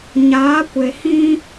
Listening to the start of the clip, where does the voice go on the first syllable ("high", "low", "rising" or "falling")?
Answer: rising